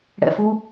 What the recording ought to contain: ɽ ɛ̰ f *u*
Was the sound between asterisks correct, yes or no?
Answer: yes